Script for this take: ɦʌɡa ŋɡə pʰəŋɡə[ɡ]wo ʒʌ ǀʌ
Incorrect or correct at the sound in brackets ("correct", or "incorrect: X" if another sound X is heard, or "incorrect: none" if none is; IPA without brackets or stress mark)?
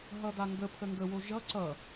incorrect: none